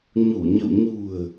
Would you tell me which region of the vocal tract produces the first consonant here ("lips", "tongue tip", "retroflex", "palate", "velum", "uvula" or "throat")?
palate